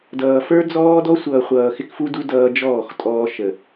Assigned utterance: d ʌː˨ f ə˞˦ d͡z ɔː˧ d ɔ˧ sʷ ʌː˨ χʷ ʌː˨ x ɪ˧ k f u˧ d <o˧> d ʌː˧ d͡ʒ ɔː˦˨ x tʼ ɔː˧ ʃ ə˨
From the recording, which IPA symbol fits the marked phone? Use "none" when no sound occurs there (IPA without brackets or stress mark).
u˧